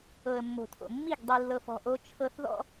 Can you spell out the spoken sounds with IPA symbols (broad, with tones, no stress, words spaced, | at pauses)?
ɤ˨ə̯mːo̤˨tʰo̰˨ mːi˦˨ɡ dˤi˨lːɤ˨fɔ̤˨ ʔo˦t͡ʃʰɤ˦θ ðɔ̰˦